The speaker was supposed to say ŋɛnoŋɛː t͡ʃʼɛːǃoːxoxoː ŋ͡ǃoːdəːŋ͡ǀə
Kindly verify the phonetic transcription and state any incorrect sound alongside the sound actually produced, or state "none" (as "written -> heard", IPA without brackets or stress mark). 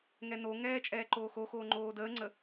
none